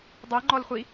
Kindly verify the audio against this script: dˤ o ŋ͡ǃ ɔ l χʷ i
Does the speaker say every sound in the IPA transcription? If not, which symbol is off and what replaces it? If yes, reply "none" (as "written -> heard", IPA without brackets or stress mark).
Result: none